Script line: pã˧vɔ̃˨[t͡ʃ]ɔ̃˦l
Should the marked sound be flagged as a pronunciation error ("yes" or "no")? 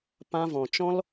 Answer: no